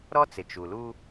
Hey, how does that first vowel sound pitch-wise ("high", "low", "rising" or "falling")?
high